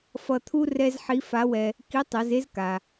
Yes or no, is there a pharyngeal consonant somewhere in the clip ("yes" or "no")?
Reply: yes